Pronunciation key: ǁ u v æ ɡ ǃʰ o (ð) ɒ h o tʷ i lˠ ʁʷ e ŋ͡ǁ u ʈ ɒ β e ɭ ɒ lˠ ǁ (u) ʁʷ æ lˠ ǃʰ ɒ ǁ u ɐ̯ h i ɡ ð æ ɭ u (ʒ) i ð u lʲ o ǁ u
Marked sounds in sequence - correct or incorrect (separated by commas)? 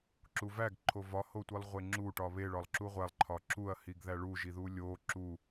incorrect, correct, correct